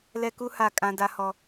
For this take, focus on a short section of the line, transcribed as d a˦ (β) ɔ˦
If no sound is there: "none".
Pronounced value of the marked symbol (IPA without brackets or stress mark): h